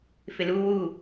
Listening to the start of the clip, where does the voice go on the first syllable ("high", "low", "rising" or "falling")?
low